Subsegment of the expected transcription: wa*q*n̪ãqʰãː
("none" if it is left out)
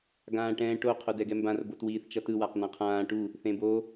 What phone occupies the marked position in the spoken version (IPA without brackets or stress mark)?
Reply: q